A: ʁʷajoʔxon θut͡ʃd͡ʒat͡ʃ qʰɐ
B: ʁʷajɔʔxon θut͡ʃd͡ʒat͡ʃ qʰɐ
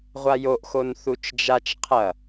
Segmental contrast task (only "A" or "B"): A